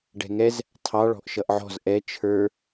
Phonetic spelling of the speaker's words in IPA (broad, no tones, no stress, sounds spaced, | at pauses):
ɖ ɛ̤ ŋ ɛ z | tʰ ɑ ɭ ɔ̤ ʔ ʃ ʌ ʔ ʕ ɔ̤ z ʔ ɛ t͡ʃʰ ə˞